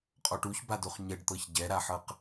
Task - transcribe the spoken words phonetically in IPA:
qʼ ɔ ʈ u ç b a d o χ ɲ ɛ ɖ t̪ ɤ ç ɟ ɛ ɾ a ħ ɤ q

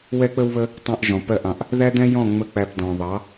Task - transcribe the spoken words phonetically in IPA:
w ɛ˦ k͡p ə˦ w β ə˦ | tˤ ɑ̃˦ ʔ ʒ ɔ̃˨ p ɜ˦ ʔ ɑ̃˧ ʔ | ð æ˦ d ɛ̃˦ j ɔ̃˦˨ ŋ͡m ə˦ k͡p æ˧ p d ɔ̃˨ ðˤ ɑ˨˦

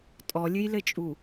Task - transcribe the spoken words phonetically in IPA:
tʼ ɔ lʲ ɨ j l ɘ t͡ʃʼ u

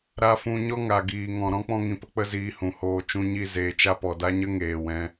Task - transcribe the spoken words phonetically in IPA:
ɾ a˧ f ũ˧ ɲ ɔ˦ ŋ a˨ ɡ iː˨ ŋ ɔ̃˨ ɾ ɔ̃˦ k͡p ɔ̃˧ ŋ ĩ˨ p ə˧ k͡p ə˧ z iː˧ h ũ˨ h oː˧ t͡ʃ ũ˧ ɲ i˦˨ z eː˧ t͡ʃ a˦ p ɔ˨ d a˦ ɲ ə˦ ŋ eː˨ w ɛ̃˧

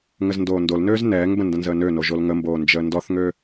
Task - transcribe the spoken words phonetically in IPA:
ŋ ə z n d oː n d o l n øː z n ɛː ŋ b ə̃ n d ə̃ n z əː n ø n o ʒ o l ŋ ə m b oː n d͡ʒ əː n d ɔ θ ŋ ø

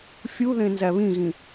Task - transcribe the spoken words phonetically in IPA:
fʲ u ð ẽ n z æ β ĩ ɣ ĩ

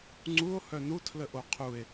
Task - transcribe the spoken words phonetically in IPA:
ŋ͡ǀ u o̯ h œ n u tʰ l ə ʔ o qʰ u e̯

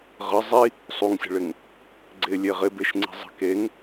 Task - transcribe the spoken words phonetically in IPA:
ʁ ə zˤ i | sˤ u ŋ sʲ ə̤ ɭ ɪ ŋ | ɡ͡ǀ ɪ lʲ e ʁ ɪ b e ʃ ŋ͡ǀ i̤ zˤ ə̤ k e ŋ

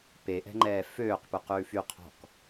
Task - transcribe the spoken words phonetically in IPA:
p e ʔ ɛ̤ ŋ͡ǃ ɛː f øː q p ʉ q ʉː f y qʰ ɔ̤ k

